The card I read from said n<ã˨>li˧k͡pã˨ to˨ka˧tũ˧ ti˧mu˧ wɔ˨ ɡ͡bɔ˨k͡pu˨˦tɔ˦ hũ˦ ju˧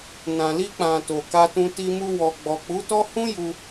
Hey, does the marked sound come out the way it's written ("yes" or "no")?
yes